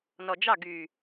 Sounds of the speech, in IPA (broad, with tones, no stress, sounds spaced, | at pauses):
n ɔ˨ d͡ʒ ɑ˦˨ ɡ y˨